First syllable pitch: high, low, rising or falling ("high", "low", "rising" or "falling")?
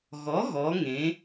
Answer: rising